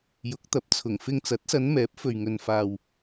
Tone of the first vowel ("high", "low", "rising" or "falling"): rising